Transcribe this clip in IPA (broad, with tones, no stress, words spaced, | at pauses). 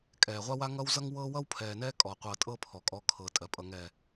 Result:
kʼɛː˨ʁʷa˦ wa˦ŋʌ˦wzʌ˦ŋ wɤ˦wʌ˦wpʰɛː˨nɛː˦ kʼɔ˨qʷɤ˨tʼɤ˦ pʰɔ˨kʼɔ˦ kʰɤː˨tʼɜ˨pʼʌ˨ ŋɛ˨